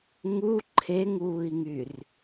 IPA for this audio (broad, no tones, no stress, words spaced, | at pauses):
ŋu ǃʰeŋuːi̯ŋyr